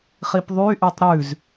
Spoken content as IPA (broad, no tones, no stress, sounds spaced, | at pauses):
χ i p ðˤ y ʔ y tˤ ɾ ʉ z